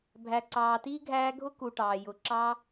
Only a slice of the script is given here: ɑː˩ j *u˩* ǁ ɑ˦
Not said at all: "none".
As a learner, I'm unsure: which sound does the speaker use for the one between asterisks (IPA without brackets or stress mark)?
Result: ʊ˩